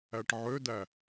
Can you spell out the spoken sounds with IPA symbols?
æʈʕødæ

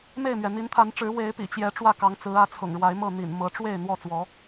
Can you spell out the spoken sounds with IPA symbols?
me˥˨ɪ̯mɥɛ˩ n̪i˨˦nt̪ʰa˨˦nʈ͡ʂɻ̩˨˦ we˨˦ɪ̯pḭ˨˩t͡ɕjɛ˨˦ ʈ͡ʂwä˥˨kɑ˨˦ŋt͡sɹ̩˨˦ ä˨˦t͡sʰʊ̰˨˩ŋɻwa˨˦ɪ̯mɤ˥˨ n̪ḭ˨˩n mɤ˨˦ ʈ͡ʂwe˥˨ɪ̯ n̪wɔ˥˨t͡swɔ˨˦

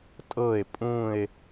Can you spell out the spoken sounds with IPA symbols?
tʼɤe̯ pʼũe̯

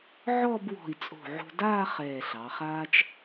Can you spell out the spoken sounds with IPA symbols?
ʕɔ˥˧b wɔ̤˧˩i̯t͡sʼo̤˧˩ʕo̤˧daː˥˧ χɛː˧˩ɬɑ˩˧χaː˥t͡ʃ

